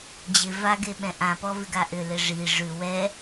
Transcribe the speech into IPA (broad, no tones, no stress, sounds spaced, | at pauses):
d͡ʑ ɪ v a ɡ e ɓ ɛ̃ ʔ ã p ɔ v ɪ ɡ a ʔ ʏ l ɪ ʐ i ʐ ʉ w ɛ